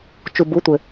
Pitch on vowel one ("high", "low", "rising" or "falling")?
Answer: low